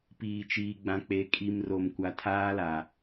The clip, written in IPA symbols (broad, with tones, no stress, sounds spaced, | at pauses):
p iː˨ t͡ʃ iː˨ ɡ͡b ã˨ k͡p e˨˦ kʼ i˨ m r o˨ m kʷ a˨ tʰ aː˦ l a˨